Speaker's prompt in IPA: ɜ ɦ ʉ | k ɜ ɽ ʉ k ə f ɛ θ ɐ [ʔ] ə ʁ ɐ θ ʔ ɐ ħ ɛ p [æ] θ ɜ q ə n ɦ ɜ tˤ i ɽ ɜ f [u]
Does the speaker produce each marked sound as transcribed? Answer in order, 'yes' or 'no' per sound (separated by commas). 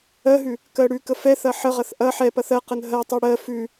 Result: no, no, no